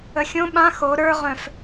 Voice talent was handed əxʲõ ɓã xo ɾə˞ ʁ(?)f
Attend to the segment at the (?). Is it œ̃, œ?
œ̃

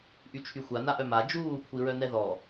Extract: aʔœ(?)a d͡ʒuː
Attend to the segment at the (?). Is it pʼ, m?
m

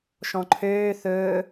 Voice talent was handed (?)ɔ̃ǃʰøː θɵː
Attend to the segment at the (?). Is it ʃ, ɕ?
ʃ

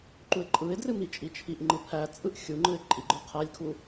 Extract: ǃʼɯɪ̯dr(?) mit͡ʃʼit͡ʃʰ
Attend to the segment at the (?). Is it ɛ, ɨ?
ɨ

